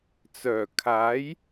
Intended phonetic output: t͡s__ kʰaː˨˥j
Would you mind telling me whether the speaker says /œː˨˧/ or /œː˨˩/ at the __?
œː˨˩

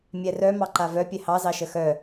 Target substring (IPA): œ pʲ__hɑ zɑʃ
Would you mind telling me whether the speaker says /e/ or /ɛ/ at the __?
ɛ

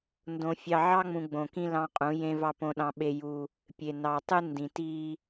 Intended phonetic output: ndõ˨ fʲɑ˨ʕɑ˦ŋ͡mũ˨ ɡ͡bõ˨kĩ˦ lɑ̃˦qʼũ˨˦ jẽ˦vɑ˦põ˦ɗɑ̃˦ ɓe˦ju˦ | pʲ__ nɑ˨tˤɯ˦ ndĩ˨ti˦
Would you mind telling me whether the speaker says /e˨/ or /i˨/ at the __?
e˨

